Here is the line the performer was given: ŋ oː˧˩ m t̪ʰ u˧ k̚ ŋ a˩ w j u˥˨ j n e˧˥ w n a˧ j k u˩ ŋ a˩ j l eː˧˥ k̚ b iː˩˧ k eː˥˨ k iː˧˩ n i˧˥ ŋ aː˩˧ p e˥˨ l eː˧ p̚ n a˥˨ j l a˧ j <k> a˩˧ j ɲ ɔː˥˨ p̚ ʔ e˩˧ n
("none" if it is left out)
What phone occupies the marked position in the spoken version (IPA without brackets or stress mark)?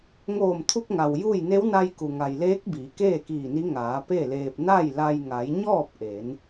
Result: ŋ